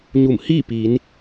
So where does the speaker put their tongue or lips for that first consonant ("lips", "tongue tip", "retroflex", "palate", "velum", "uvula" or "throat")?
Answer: palate